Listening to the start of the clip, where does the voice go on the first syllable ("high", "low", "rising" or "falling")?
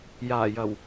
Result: low